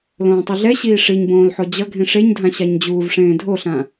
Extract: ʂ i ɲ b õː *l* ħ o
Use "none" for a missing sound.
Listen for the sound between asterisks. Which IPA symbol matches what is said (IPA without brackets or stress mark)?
l